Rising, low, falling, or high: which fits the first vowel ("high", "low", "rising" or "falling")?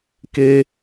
high